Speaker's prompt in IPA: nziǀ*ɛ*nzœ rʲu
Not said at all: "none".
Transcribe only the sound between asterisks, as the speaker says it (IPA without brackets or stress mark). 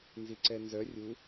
ɛ